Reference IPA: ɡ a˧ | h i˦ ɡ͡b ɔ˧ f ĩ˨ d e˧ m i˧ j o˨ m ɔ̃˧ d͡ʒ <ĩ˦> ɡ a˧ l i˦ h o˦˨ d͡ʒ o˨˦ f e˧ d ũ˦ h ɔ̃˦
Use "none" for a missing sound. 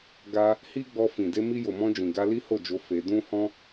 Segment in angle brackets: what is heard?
ĩ˨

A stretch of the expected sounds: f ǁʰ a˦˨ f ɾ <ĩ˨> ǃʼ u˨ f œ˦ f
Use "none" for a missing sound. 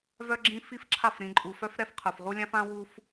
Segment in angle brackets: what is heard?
ĩ˨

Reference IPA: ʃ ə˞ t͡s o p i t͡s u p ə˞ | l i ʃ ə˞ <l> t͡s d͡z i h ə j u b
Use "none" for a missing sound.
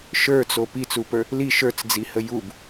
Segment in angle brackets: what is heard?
none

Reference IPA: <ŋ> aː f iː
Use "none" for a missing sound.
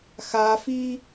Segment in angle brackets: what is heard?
x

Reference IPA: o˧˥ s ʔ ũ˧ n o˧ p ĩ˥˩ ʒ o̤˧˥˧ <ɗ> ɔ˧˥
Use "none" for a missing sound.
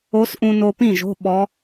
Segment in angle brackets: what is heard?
ɓ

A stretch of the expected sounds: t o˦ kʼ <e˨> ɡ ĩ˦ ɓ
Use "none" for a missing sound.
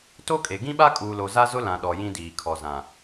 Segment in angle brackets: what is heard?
e˨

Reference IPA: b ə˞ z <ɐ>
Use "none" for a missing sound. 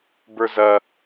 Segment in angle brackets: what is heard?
ɐ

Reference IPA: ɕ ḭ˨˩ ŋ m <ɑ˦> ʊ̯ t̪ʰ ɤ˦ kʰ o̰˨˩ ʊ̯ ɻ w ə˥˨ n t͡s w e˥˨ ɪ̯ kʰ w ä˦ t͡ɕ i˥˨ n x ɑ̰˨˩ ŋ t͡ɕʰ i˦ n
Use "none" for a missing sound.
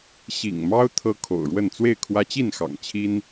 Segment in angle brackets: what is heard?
ɑ˦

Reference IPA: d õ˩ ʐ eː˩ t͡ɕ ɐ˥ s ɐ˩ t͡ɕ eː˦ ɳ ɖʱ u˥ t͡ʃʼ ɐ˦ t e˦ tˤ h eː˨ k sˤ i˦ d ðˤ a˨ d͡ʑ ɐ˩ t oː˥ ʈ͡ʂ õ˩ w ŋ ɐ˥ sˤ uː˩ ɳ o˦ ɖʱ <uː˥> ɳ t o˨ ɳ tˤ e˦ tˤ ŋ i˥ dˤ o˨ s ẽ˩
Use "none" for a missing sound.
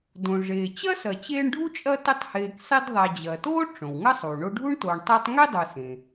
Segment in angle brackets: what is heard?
u˥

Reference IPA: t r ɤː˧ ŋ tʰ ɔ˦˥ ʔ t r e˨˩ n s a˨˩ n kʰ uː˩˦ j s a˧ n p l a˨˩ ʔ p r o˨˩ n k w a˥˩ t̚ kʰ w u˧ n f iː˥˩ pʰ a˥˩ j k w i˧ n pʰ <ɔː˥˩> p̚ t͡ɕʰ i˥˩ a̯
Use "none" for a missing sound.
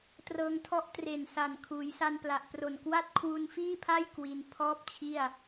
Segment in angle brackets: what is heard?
ɔː˥˩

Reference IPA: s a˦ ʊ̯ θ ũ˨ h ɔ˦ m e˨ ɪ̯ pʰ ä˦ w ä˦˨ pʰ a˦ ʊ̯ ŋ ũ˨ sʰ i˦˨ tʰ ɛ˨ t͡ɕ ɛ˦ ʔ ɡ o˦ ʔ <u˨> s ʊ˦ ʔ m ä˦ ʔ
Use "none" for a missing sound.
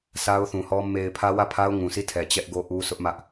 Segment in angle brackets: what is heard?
u˦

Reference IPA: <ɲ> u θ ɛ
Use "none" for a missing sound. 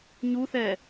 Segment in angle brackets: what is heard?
ɲ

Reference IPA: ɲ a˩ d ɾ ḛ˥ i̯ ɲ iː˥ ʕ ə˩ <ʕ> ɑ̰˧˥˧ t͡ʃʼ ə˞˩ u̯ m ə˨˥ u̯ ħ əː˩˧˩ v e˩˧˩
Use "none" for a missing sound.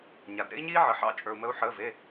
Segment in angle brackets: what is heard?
ħ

